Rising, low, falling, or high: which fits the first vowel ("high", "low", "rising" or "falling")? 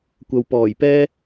low